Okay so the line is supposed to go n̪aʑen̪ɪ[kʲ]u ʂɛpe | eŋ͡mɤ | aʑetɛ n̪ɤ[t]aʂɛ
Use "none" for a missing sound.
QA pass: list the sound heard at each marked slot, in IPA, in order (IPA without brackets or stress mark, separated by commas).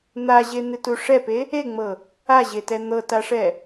t, t